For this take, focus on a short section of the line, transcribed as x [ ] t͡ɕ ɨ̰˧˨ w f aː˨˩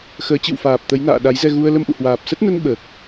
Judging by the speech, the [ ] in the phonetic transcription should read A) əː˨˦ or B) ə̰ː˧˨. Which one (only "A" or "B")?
A